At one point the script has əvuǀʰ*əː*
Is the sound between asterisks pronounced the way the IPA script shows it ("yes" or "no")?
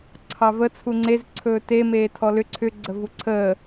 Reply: yes